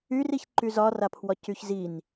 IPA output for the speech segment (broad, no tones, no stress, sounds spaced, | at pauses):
y r i ç ǃ y z ɒ r a pʰ w ɒ c y ç z i n